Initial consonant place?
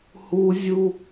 glottal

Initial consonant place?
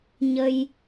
palatal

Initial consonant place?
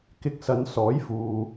velar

